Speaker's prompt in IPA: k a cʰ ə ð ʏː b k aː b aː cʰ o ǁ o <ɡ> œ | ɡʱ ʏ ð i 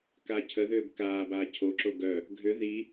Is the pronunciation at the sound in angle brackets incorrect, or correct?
correct